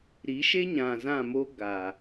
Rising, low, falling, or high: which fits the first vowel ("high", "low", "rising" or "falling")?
rising